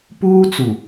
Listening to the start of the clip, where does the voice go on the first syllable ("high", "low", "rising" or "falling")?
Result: high